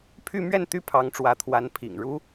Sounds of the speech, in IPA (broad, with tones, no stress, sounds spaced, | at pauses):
pʰ y˥˧ m ɥ ɛ˥˩ n t̪ y˥ pʰ ɑ˧˥ ŋ ʈ͡ʂ w ä˧˥ t̪ʰ w a˧˥ n pʰ ḭ˨˩ ŋ ɻ u˥